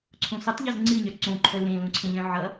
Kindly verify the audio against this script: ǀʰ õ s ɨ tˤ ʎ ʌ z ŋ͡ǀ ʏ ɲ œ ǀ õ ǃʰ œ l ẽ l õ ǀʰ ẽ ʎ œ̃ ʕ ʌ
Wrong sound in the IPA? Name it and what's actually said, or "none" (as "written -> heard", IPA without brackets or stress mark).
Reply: ʏ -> ɨ